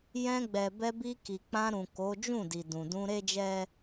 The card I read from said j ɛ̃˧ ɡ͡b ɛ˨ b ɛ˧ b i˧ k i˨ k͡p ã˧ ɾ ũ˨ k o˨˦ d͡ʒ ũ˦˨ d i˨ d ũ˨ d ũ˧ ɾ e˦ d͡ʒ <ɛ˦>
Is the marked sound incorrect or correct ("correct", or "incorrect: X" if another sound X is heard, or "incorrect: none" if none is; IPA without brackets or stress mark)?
correct